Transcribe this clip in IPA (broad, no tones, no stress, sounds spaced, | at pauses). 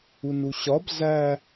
u n u ɕ ɒ b z æ